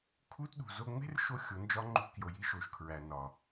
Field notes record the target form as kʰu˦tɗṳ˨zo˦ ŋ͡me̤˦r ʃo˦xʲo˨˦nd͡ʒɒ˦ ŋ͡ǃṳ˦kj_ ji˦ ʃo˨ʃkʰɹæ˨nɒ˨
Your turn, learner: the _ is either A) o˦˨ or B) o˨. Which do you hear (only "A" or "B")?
B